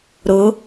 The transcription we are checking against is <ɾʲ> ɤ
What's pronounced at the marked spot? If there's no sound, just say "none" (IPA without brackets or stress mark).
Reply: ɾ